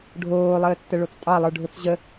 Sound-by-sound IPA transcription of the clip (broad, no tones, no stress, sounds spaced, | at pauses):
ɖʱ oː lˠ əː tː ə ɭ o t͡s tʼ ɑ lˠ ə˞ ɖʱ ʊ t͡s ʑ ə